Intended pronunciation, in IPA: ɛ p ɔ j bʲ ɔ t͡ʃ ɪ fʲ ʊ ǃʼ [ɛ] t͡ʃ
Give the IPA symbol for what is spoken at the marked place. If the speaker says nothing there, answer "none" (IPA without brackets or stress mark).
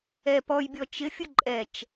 ɛ